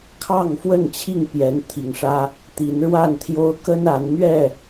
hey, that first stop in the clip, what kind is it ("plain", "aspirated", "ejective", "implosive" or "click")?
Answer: aspirated